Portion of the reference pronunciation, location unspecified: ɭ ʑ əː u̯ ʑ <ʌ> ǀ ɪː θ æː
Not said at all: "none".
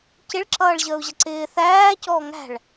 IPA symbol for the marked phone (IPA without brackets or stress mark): ʌ